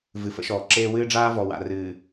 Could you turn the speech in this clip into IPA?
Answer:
vɨ˨fə̰˦ʃɔː˨ǁeː˦ wɨː˦ɖ͡ʐaː˦vɔ˨ wa̰˨rɨː˨

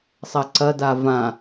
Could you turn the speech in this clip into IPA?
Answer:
sˤɐǀɐda vã

